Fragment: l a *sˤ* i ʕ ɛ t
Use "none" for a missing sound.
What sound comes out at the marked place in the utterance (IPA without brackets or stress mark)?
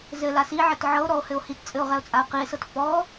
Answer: s